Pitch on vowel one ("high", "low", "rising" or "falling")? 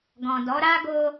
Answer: low